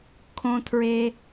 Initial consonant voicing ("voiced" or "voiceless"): voiceless